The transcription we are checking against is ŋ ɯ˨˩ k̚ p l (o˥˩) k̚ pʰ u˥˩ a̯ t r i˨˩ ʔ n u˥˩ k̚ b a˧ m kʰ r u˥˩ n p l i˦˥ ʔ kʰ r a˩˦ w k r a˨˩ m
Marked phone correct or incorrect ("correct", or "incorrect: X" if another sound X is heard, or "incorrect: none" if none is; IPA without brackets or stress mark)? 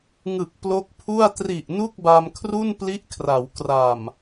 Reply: incorrect: o˦˥